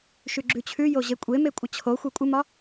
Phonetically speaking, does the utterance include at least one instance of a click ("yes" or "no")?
yes